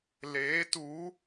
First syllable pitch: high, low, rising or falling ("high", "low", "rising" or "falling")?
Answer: rising